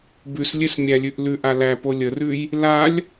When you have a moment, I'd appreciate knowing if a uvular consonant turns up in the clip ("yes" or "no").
no